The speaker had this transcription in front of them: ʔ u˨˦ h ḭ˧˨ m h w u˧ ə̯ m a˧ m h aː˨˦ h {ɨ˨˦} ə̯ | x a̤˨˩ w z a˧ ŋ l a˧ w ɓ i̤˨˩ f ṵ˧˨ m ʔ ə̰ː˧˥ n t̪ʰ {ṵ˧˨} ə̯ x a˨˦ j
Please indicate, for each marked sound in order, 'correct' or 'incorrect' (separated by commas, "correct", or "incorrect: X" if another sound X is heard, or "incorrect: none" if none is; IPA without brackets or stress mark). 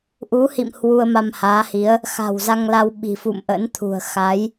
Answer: incorrect: i˨˦, incorrect: ṳ˨˩